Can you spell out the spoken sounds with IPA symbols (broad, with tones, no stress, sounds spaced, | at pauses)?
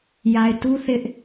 j a˨ ɪ̯ t u˦ θ ɪ˦ ʔ